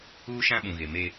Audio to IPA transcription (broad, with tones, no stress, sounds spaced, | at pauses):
uː˦ ʃ ã˦ ɓ ũ˨ ɣ e˨ m e˦